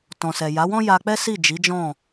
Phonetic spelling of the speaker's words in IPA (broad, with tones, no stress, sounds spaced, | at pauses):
t ɔ̃˨ s ɛ˨ j a˨˦ w ɔ̃˦ j a˧ k͡p ɛ˦ s i˦˨ d͡ʒ i˨˦ d͡ʒ ɔ̃˦˨